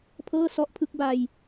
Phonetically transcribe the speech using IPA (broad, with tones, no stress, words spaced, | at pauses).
pʰɤː˥˩sɔ˦˥ʔ pʰɯ˥˩k̚ba˧j